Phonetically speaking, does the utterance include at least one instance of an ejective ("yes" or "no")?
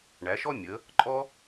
yes